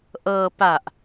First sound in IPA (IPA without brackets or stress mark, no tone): ʔ